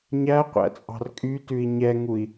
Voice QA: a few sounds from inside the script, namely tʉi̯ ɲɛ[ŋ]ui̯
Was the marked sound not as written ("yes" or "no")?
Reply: no